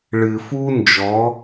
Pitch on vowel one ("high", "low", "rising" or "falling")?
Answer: low